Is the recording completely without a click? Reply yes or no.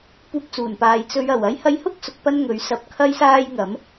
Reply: yes